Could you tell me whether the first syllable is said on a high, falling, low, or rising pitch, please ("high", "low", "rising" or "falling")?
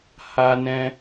high